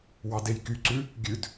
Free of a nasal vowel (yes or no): yes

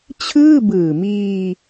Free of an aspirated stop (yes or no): no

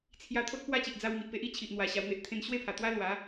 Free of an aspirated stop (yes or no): no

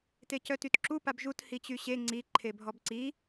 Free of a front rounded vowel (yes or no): no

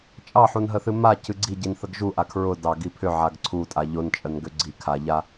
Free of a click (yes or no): no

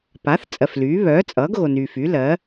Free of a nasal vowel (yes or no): yes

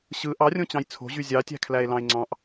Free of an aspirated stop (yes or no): no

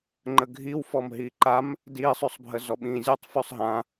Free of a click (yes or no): no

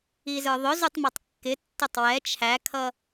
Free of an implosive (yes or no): yes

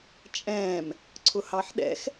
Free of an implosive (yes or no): no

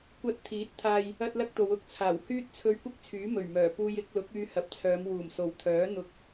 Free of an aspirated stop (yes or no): no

